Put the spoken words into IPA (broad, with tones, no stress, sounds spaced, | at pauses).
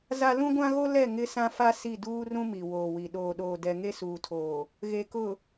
z a˦ l ũ˦ ɡʷ ã˦ ɣ o˦ l ɛ˦˨ ŋ ɪ˦ s ã˦ f a˦ s i˦˨ d uː˦ r ũ˦ m i˨ w oː˨ w i˨ ɗ oː˨ ɗ oː˨ d ɛ˨ ŋ e˦ s uː˨ tʰ oː˨ | ɣ e˨ k ʊ˨